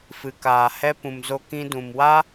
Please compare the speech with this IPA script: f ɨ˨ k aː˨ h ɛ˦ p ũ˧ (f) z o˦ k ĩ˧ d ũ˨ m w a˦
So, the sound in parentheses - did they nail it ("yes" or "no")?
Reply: no